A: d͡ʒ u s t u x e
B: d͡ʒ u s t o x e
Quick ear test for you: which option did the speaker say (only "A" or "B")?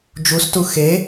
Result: A